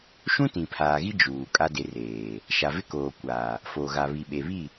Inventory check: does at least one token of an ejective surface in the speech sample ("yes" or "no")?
yes